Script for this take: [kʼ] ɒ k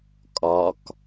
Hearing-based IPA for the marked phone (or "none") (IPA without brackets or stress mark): kʼ